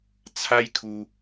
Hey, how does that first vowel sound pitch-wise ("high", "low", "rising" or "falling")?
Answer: high